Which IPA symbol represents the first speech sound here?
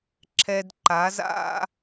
ǁʰ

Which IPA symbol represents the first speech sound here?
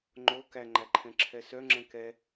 ŋ͡ǃ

